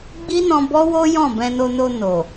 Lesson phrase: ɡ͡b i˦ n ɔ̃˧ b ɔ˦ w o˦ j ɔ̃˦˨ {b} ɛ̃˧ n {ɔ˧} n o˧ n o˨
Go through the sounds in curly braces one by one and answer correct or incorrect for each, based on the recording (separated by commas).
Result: correct, incorrect